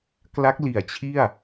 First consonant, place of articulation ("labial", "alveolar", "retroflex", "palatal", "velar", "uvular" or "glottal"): velar